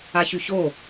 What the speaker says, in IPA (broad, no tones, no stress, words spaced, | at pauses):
açyço